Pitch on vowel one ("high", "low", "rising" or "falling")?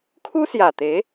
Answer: high